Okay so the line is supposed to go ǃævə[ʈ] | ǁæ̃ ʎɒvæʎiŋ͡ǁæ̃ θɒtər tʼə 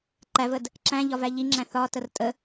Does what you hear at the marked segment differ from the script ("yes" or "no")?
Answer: yes